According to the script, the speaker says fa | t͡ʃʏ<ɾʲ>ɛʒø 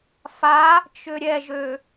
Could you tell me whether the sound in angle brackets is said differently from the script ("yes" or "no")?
no